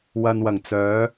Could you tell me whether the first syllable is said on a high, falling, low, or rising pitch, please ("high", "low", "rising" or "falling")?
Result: low